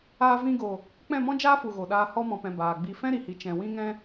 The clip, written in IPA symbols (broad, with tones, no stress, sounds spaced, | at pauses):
aː˧ v ĩ˧ ɡ o˨ | k͡p ɛ̃˦˨ m ɔ̃˦ d͡ʒ aː˦ f u˨ ɣ o˨ ɗ aː˧ h ɔ˧ m ɔ̃˨ p ɛ̃˨ b aː˨ ɡ͡b i˧ f ɛ̃˦ ɾ i˨ h i˨ t͡ʃ ɛ̃˨ w ĩ˧ ŋ ɛ̃˧